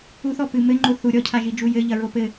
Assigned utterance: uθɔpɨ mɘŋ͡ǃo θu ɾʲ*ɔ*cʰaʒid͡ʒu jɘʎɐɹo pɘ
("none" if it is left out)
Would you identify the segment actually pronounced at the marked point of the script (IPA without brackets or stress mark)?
ɔ